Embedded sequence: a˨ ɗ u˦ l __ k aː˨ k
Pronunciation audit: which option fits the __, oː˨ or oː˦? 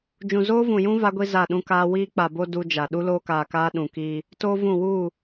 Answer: oː˦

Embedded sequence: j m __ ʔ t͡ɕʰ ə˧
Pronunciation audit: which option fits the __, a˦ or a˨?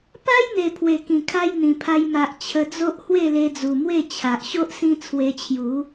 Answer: a˨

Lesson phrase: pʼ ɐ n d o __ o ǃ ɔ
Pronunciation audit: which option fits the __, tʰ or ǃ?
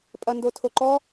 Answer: tʰ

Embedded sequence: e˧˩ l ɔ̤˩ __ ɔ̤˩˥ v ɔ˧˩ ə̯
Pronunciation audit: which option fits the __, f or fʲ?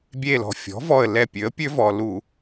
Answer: fʲ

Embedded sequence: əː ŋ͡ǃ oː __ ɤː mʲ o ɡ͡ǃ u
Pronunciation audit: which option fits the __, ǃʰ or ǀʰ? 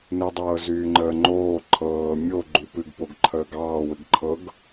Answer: ǃʰ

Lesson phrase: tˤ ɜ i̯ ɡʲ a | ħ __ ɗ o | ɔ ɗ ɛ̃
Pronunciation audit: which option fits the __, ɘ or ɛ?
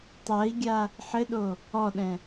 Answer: ɘ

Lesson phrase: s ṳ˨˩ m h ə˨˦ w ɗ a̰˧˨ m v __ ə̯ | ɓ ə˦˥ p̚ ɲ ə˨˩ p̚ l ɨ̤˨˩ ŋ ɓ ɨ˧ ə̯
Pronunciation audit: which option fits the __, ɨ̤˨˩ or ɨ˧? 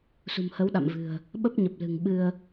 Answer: ɨ̤˨˩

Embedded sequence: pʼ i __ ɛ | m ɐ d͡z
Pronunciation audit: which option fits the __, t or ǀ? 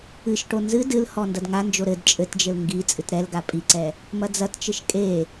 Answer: ǀ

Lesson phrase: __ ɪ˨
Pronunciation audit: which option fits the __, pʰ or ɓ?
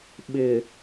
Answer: ɓ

